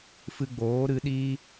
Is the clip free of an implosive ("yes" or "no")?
no